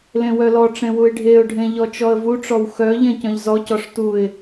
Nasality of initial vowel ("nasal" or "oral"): nasal